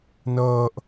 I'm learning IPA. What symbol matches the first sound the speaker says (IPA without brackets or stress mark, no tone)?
n